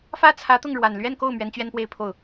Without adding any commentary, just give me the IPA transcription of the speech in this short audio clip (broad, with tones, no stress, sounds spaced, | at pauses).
f ä˥ t͡sʰ ä˧˥ t̪ ʊ˥˩ ŋ ɻ w a˨˩ n l ɥ ɛ˥˧ n k o˥˩ ʊ̯ m ɥ ɛ˧˥ n t͡ɕ ɥ ɛ˥ n p w e˥˧ ɪ̯ pʰ o˥˩ ʊ̯